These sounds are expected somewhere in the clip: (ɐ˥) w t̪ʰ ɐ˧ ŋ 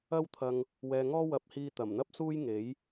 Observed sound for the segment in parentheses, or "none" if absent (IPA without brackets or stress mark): ɐ˥